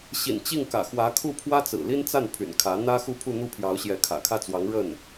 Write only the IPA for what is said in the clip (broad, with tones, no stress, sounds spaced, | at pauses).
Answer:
ɕ ḭ˨˩ n t͡ɕ i˥˩ ŋ k ä̰˨˩ x w ä˧˥ kʰ u˥˩ pʰ w ä˥ t͡s ɹ̩˨˩ l i˥ n t͡s a˥˩ n pʰ y̰˨˩ n kʰ ä˧˥ n̪ ä˥ x u˥˧ pʰ u˥˧ n̪ u˥˩ pʰ j ɑ˧˥ ʊ̯ ɕ j ɛ˧˥ kʰ ä̰˨˩ kʰ ä˥˩ t͡s w ɑ˧˥ ŋ ɻ ə˥˩ n